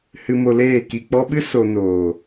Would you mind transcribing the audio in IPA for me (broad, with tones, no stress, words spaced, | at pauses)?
hɨ˧mo˧leː˦˨ ki˨k͡pɔ˧ɓɨ˦ so˧ noː˨